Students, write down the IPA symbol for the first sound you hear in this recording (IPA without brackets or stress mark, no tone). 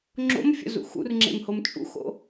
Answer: ŋ͡ǁ